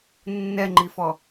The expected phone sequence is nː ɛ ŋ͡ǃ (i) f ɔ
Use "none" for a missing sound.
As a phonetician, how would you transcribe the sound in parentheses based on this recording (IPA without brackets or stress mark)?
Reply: i